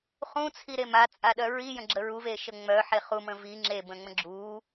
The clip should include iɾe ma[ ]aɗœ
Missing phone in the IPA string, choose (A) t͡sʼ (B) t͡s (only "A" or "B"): A